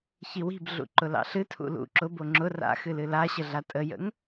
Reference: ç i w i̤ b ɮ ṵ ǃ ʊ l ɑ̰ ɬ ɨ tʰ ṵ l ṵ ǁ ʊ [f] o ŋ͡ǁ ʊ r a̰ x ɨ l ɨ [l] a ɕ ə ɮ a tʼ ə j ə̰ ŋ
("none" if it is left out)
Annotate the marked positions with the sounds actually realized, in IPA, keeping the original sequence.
b, l

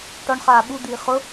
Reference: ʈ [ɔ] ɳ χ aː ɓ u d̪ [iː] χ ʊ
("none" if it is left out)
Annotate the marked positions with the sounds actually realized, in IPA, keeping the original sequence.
ɔ, iː

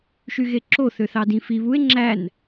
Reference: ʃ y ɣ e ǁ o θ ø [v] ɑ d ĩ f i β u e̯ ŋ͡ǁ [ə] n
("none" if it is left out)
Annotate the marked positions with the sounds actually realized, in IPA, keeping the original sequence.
θ, æ

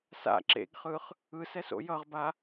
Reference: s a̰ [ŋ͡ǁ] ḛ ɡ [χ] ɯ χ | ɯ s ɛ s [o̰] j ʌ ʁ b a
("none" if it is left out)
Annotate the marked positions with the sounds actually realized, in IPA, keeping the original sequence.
ǁ, χ, o̰

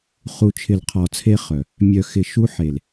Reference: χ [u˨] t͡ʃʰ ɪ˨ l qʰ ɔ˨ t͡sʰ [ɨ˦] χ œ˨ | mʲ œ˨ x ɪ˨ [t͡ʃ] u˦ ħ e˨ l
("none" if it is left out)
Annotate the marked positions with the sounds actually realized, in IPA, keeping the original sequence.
u˨, e˦, ʃ

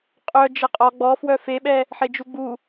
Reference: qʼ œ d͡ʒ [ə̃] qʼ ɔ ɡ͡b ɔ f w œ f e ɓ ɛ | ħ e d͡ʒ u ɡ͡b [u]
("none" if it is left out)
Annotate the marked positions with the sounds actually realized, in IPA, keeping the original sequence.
ə, u

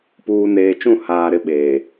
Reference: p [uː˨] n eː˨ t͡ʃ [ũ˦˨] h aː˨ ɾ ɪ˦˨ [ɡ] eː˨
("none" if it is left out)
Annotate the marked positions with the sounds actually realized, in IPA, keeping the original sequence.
uː˨, ũ˦˨, ɓ

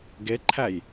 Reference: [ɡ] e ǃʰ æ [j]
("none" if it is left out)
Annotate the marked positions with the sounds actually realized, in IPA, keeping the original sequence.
ɡ, j

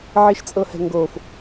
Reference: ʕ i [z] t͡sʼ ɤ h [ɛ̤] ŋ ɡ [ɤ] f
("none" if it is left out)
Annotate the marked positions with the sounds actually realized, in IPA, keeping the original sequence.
ʃ, ɛ̤, o

